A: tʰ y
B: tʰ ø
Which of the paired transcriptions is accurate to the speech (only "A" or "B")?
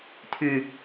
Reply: A